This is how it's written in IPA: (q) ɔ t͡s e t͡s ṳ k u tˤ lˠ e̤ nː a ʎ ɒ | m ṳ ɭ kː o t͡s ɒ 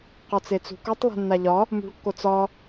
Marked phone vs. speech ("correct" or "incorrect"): correct